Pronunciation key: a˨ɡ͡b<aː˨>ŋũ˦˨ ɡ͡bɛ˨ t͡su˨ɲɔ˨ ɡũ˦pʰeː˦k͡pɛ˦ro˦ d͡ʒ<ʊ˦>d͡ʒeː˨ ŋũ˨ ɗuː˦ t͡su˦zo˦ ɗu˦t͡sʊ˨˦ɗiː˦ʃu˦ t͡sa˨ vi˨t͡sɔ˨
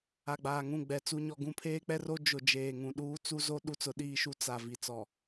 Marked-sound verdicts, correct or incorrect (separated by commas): correct, incorrect